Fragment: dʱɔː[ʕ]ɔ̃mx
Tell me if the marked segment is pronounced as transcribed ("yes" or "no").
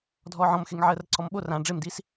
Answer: yes